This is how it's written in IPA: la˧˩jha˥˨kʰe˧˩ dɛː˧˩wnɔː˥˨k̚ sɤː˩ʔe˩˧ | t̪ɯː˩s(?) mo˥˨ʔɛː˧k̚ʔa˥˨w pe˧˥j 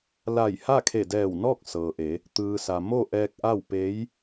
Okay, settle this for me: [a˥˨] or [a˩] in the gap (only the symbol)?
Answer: a˩